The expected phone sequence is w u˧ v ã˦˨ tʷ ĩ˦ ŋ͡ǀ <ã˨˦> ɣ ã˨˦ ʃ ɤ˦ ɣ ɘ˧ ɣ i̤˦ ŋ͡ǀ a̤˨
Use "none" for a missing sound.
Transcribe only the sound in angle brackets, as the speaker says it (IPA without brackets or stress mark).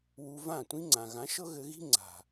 ã˨